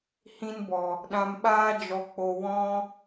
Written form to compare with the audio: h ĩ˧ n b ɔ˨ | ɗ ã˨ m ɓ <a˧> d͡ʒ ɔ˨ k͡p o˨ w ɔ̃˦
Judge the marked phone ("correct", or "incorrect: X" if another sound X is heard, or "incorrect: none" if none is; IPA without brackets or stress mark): incorrect: aː˧